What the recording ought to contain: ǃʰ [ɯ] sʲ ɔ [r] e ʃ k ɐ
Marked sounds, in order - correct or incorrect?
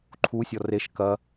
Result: incorrect: u, correct

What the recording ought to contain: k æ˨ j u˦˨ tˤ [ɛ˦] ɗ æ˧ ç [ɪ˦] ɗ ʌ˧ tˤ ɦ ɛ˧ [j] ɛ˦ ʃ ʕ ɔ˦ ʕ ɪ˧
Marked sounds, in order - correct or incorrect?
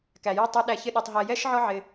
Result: incorrect: æ˦, correct, correct

